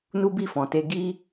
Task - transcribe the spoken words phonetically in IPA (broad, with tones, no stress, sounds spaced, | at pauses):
n u˦ b i˦˨ f ɔ̃˨ t e˧ ɡ i˦